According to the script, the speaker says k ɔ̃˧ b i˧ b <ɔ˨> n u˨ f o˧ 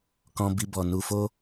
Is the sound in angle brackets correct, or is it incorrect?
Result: correct